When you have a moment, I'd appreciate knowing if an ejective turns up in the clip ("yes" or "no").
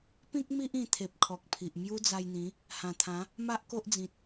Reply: no